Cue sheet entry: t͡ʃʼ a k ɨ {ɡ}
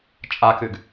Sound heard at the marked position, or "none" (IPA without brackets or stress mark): ɡ